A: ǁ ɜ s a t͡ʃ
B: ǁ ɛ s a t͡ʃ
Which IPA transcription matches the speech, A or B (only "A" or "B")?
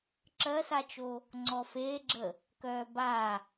A